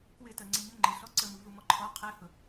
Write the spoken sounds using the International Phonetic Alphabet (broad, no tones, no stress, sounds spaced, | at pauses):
k w ɪ t ɜ ŋ͡ǀ ə ɲ ʊ ŋ͡ǃ ɪ ɬ ɔ ǀ ə m u v u m ɔ ǃʰ ɔ qʰ ɛ h ʊ